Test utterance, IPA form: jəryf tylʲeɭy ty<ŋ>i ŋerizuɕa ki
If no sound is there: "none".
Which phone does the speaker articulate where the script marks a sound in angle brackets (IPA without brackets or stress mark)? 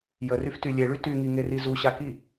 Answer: ŋ